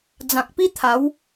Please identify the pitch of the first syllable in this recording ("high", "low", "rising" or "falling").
low